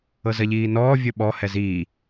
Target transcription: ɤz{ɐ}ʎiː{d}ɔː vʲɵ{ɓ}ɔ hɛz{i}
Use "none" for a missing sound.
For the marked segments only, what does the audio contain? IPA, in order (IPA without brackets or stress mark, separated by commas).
ɐ, n, ɓ, iː